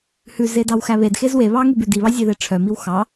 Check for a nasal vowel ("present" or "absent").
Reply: absent